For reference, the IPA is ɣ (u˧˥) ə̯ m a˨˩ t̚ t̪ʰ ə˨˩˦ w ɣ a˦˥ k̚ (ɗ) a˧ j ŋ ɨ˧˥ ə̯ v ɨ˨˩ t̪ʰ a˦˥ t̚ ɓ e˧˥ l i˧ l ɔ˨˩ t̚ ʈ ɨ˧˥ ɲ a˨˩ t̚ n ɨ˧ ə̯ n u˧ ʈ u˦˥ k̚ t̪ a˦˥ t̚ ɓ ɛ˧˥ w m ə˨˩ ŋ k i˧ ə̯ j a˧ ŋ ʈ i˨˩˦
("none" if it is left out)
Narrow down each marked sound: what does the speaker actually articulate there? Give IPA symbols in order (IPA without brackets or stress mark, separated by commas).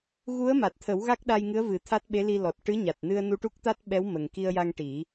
u˧˥, ɗ